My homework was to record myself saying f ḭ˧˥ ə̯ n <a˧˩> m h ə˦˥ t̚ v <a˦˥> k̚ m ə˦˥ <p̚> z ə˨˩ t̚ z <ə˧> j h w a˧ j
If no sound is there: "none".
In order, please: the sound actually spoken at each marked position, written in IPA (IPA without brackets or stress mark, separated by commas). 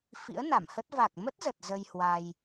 a˧˩, a˨˩, t̚, ə˧